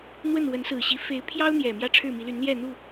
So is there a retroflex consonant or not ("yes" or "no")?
yes